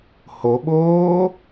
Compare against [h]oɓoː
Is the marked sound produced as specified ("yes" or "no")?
yes